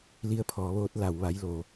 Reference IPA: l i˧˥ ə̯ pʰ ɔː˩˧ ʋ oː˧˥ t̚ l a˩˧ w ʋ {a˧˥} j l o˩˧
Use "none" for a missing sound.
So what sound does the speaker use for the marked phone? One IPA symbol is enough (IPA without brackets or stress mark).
a˧˥